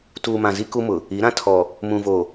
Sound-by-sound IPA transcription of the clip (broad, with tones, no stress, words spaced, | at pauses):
tuː˨mã˨zi˦ ku˦mʊ˨ | i˨˦ ɾã˦tʰɔ˨ | mũ˨vo˨